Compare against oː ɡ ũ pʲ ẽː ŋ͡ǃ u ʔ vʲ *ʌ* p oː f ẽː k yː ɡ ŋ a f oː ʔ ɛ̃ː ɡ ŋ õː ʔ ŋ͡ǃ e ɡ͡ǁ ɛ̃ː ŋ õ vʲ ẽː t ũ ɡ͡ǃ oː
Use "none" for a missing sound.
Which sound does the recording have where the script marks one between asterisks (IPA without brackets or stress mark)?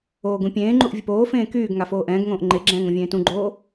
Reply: ʌ